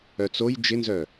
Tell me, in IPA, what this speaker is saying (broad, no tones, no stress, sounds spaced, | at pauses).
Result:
œ t͡s o j d͡ʒ ɪ n z œ